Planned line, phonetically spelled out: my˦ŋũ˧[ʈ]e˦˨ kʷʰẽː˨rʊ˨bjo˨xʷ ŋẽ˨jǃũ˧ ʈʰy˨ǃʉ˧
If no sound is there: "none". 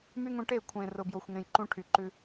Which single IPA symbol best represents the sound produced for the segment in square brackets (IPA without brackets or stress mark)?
ʈ